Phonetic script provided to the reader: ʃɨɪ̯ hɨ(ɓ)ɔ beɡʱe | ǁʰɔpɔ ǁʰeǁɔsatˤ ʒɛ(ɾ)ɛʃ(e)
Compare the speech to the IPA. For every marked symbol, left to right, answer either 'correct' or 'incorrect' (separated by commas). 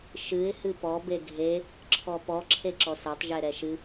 incorrect, correct, incorrect